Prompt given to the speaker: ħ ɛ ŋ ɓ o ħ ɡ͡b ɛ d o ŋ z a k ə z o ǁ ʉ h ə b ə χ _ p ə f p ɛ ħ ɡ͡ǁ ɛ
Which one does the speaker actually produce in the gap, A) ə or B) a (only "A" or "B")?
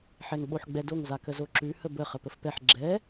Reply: A